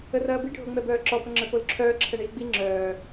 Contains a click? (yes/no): yes